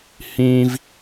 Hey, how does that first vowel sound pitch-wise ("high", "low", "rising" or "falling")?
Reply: high